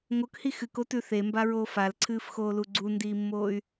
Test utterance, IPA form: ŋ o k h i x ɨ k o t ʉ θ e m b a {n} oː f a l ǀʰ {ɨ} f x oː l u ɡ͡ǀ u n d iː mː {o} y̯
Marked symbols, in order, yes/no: no, no, no

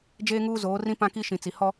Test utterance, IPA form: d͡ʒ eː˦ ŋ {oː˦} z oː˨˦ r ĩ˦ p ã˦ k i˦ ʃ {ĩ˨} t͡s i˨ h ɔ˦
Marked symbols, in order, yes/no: no, yes

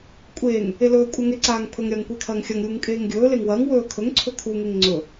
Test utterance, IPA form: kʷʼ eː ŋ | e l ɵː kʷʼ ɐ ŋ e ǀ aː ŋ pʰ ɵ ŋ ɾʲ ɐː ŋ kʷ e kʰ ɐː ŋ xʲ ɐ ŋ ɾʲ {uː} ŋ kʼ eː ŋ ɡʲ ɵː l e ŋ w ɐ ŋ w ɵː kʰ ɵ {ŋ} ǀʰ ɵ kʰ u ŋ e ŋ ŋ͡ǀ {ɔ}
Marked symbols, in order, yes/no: yes, yes, no

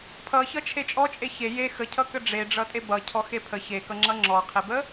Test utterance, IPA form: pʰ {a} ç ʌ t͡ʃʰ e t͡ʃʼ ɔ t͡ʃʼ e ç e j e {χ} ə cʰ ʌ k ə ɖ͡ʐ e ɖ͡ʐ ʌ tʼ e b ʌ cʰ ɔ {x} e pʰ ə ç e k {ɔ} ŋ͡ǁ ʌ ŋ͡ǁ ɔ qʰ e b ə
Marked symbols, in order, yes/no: no, no, yes, no

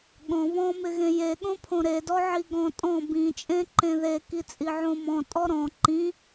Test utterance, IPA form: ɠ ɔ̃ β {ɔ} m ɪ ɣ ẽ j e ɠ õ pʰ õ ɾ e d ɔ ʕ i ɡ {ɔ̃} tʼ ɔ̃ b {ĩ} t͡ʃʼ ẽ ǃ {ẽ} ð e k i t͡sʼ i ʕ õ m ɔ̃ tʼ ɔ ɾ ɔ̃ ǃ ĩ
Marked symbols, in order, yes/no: no, yes, yes, yes

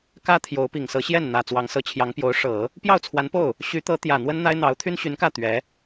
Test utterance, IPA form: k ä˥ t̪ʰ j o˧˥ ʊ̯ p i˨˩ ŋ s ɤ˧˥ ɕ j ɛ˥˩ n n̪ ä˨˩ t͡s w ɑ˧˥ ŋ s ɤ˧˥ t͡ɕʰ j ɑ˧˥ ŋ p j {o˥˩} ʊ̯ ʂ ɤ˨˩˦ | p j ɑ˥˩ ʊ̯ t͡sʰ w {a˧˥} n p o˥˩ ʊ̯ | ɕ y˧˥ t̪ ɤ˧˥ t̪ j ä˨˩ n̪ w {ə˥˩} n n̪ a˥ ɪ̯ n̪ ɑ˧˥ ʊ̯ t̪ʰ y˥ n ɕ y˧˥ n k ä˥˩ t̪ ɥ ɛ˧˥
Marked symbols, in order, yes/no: no, yes, no

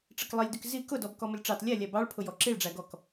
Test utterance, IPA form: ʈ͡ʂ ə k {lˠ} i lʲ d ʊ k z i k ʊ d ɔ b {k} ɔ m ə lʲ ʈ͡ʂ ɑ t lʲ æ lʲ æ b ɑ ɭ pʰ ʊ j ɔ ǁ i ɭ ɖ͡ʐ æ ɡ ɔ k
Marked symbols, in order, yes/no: yes, yes

